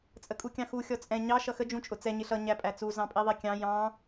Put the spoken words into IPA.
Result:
t͡sʼ ə kʼ u kʲ ɑ̃ x u xʲ ɔ t͡sʼ ɛ̃ ɲ ɑ ʃ ʌ x ə d͡ʒ ũ t͡ʃʼ ʊ t͡s ɛ ɲ ɪ ɬ ʌ ɲ æ pʼ æ t͡s u z ɑ̃ pʼ i ðˤ i kʲ ɑ̃ j ɑ̃

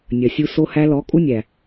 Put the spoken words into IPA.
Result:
nʲ ɐ˨ sʲ u˧ s o˧ h æ˧ l ɔ˨˦ kʼ u˦ nʲ æ˨

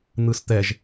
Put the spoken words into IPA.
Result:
n̪ ɯ s t̪ ɛ ʒ

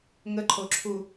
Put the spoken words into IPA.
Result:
ŋ ə ǃʰ o ǁʰ u

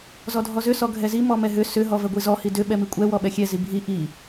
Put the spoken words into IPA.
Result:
z ɔ dʱ ɔ z ʏ s ɔ ɡʱ ɛ z i m ɔ m ɛ ɦ ʏ s ʏ ɦ ɔ v ɛ ɡʷ i z ɔ h i d ʏ ɓ ɛ m i kʷʼ ɛ w ɔ ɓ ɛ xʲ ɛ z i bʱ i ʔ i

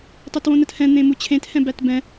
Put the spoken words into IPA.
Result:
tˤ o t w õ n ə t h ɛ̃ n̪ ẽ m u t͡ɕʰ ẽ t h ɛ̃ b æ t b ɛ̃

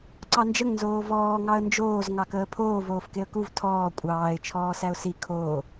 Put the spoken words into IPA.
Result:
ǀ ɑ n d͡ʒ ə ŋ n z oː v ɔː ŋ ɑ ə̯ n d͡ʒ oː z ŋ ɑ k əː pʰ oː v oː f k e ə̯ k u v tʰ ɔː kʷʼ ɑː ɪ̯ t͡ʃʰ ɔː s æ ʊ̯ s i kʰ oː

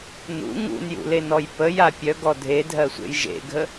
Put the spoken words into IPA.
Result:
n ṵ ŋ ṵ n j ṵ l e n ɔ j p ə j a pʲ œ ɡ ɔ dʱ e dʱ ɜ sʷ ḛ j ʒ ḛ ɡʱ ə

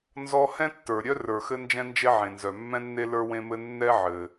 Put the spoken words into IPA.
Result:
n z ɔ˥ h ɛ̃˥ tː ə˞˩ ɾʲ œ˥ r ə˞˩ x ɘ˥ n d͡ʒ ɛ̃˥ n d͡ʒ e˥ ʕ ẽ˩ n z œ˩ mː ɛ̃˥ nː e˥ l ə˞˥ w ẽ˥ m ɘ˥ nː ɛ˥ ʕ ɘ˩

